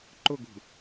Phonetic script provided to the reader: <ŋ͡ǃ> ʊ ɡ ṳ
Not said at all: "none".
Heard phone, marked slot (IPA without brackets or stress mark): ǃ